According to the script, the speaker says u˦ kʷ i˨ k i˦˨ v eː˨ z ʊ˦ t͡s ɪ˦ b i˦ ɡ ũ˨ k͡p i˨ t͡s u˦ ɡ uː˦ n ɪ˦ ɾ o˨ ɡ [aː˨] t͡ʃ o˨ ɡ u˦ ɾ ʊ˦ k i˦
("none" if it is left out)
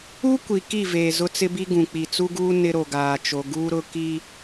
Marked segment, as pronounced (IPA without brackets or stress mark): aː˨